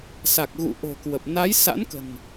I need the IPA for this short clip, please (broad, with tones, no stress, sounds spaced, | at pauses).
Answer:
s a˨˩ k̚ ɣ ṵ˧˨ ʔ o̤˨˩ k w ə˨˩ p̚ n a˨˦ j s a̰˧˥ n k ə̤˨˩ n